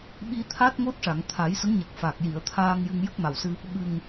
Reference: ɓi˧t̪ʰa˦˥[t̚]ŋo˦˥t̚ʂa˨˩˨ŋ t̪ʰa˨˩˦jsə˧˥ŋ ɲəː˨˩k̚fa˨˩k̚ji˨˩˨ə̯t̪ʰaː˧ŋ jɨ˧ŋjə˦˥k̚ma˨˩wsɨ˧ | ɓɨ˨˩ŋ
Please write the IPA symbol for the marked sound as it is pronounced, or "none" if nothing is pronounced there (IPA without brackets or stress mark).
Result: t̚